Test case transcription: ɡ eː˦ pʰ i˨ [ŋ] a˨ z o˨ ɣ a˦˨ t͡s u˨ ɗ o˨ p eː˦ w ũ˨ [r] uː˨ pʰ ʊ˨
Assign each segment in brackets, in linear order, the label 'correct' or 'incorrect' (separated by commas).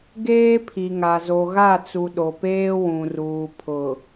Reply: correct, correct